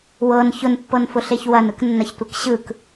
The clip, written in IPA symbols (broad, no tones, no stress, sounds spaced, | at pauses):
w ɤ n ç ʊ n pː ɤ n f ʊ ɬ e ç w ɐ n ɯ k nː ɐ ç tʷ ɯ k ɕ ɯ k